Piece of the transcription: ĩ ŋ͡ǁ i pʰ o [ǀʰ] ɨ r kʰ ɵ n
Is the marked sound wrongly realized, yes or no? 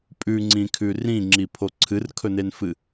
no